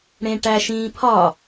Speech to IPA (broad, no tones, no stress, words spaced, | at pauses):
ɽẽʈæʃĩːpʰɒ